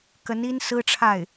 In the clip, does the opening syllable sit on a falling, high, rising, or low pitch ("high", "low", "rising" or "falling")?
rising